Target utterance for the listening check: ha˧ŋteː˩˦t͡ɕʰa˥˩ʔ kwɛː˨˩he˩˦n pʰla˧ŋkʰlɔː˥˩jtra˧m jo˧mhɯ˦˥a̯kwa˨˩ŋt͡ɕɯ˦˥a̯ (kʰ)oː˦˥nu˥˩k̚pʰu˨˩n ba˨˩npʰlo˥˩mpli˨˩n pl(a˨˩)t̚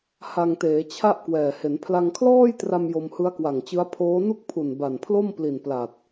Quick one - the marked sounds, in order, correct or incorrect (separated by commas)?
incorrect, correct